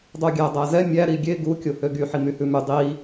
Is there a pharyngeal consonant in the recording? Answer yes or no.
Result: yes